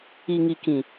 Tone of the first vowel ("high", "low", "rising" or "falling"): low